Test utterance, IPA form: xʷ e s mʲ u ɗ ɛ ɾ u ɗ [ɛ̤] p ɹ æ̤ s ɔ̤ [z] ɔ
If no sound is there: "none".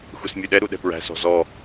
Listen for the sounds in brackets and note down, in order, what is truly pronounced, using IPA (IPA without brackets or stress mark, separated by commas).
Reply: ɛ̤, z